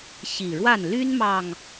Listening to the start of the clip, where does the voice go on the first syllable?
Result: low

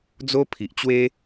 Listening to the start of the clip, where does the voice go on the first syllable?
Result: high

